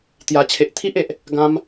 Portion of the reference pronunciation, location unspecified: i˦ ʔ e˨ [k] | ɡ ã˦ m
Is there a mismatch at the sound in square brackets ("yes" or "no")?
yes